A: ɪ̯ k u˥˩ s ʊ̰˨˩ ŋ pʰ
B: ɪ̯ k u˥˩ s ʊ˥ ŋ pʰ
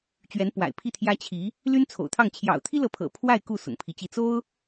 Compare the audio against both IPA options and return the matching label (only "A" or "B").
A